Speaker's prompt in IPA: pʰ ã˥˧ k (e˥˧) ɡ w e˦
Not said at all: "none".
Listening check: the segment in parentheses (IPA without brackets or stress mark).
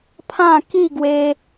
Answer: i˥˧